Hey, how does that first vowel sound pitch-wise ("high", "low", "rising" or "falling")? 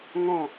falling